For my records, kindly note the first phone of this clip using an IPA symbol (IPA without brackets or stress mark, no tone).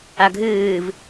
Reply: a